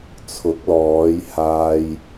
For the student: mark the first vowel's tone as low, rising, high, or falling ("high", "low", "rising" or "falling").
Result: rising